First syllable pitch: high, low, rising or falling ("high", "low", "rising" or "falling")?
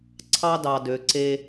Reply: high